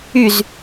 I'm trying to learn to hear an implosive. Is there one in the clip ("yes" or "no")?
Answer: no